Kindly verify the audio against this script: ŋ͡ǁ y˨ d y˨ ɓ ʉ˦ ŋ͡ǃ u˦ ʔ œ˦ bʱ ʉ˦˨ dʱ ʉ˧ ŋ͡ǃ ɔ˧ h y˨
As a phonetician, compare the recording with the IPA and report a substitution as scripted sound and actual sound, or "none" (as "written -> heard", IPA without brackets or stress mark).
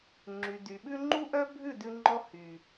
dʱ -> d